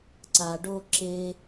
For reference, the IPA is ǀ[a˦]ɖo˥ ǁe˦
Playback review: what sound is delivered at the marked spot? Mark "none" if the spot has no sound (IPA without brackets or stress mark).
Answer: a˦